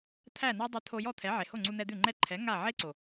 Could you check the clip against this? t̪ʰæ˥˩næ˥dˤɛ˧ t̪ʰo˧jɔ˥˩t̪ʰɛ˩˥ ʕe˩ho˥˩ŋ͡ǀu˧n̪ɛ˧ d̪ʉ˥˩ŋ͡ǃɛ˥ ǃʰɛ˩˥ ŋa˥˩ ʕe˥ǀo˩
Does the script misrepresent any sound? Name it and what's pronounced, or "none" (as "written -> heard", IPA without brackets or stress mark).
none